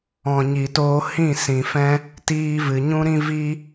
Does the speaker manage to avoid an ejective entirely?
yes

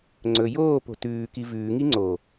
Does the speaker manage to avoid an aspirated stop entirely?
yes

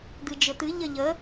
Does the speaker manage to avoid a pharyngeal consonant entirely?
yes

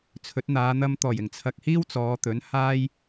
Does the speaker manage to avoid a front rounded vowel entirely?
yes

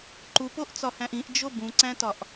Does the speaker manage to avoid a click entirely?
no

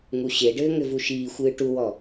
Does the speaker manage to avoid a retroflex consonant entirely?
no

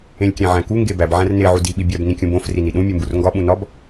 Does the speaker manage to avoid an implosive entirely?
no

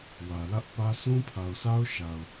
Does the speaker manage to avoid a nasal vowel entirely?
no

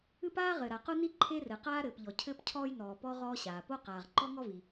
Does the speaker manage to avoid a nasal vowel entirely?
yes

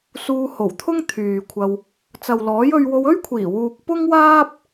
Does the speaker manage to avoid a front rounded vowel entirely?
no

